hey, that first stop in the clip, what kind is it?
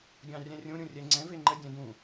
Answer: plain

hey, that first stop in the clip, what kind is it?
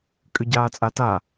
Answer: ejective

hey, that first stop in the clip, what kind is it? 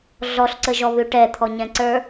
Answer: click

